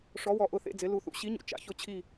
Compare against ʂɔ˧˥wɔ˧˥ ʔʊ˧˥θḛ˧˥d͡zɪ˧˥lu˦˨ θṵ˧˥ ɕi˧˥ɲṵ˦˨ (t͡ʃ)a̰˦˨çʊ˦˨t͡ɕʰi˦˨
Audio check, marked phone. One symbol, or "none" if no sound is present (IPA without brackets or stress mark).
t͡ʃ